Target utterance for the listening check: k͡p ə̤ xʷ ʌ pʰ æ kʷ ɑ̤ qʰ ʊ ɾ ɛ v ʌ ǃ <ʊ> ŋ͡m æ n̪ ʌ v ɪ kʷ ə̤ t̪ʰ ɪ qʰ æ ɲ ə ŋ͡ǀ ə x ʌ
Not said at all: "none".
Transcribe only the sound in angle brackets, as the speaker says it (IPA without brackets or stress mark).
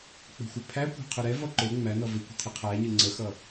ʊ